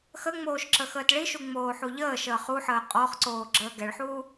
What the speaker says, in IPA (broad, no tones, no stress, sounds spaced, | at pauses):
x ə ŋ͡m oː ʃ ǁ ə x əː t ɭ i ʃ u ŋ͡m oː ħ u ʎ əː ʃ əː χ u ħ əː qʼ ɔ χ ǀ oː ɡ͡ǁ əː ɡ ɛ ɭ ħ uː